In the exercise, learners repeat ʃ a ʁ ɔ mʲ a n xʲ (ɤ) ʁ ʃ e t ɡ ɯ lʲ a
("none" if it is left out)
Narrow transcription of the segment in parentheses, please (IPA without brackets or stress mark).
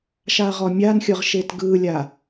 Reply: ɤ